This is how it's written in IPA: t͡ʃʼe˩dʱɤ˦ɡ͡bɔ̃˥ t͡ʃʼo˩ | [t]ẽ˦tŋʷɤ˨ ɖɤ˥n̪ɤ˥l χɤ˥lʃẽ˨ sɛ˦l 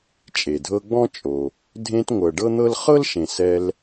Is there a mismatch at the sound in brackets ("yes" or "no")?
yes